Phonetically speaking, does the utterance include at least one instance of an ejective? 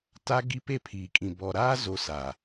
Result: yes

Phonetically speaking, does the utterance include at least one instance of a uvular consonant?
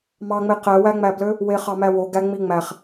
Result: yes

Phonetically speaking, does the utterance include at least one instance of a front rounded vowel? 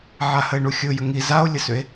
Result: yes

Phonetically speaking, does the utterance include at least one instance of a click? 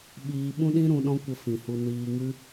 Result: no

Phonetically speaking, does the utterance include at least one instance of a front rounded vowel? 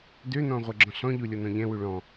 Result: yes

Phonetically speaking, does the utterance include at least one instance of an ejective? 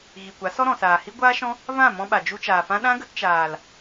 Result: no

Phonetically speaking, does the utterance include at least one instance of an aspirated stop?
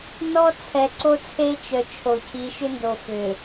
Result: yes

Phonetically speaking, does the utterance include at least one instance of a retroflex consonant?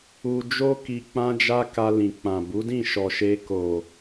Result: no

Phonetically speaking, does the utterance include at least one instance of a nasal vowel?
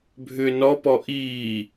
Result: no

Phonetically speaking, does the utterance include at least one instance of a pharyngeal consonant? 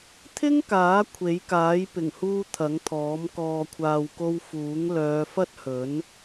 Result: no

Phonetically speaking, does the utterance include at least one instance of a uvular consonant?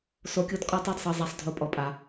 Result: no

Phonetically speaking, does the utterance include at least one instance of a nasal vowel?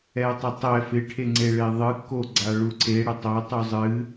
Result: no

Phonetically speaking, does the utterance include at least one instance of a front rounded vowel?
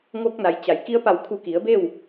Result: no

